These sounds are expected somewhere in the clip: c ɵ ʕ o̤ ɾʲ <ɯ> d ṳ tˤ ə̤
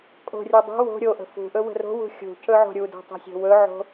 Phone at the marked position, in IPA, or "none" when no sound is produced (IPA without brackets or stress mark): u